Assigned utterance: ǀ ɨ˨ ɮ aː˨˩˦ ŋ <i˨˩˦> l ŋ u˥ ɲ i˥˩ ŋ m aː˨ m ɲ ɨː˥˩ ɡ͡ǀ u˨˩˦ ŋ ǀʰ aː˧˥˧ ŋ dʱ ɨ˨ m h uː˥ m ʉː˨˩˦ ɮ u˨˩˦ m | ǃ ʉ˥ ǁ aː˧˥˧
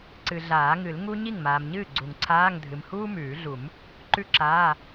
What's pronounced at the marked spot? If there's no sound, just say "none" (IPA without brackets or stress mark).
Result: ɨ˨˩˦